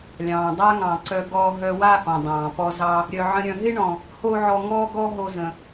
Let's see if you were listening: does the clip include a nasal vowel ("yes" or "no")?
yes